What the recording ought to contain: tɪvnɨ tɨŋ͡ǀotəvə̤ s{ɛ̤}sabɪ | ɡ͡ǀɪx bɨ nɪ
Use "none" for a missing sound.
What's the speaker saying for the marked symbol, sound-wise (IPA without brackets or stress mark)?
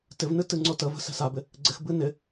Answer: ɛ̤